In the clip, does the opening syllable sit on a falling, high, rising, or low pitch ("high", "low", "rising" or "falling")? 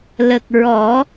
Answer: low